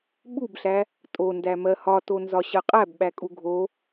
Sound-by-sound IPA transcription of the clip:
ɓubɬæ | tʼondæ mɜhɒtonzɒ ɕɜqʼæbɓækʼu ɡʱo

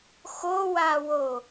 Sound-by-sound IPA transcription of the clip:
xowawo

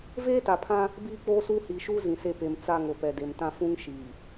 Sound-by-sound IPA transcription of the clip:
veː˦ta˨pʰã˦ | biː˦k͡poː˦suː˦ hiː˨ʃuː˦ zĩ˨se˦˨ pe˨m t͡sa˦˨ŋ o˨pɛ˨de˨m tã˦ fũ˦ŋ ʃiː˨

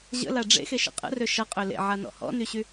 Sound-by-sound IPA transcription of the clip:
ʑə̰la ɖ͡ʐḛxeʃə̰ qʼə̰rø ʃʌqʼø lḛʕanɔ̰ hɔ̰nyɕy

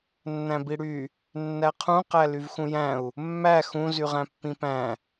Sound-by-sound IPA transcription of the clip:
nːæ̃biɽy | nːæqʰũqæ lyvxũjæ̃u̯ | mːæ xũ zyʁæ̃pːĩpæ̃

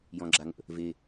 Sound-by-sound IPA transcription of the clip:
jɔ̃ɡ͡ǁaŋə̰ | ve

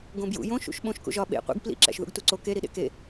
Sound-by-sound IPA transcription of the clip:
ɡõbjṵ jõ ʃṵʃɓõʃ kṵʒɒ ɓḛ qʷḭɡ plḭǁæ̰ʃ ðṵɡtuǀo keɾiɗḛ ke

